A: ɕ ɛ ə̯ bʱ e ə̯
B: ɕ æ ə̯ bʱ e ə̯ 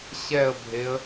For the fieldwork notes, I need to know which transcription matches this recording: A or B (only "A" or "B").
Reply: A